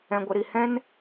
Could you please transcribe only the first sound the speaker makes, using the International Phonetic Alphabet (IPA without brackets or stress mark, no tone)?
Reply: ɛ̃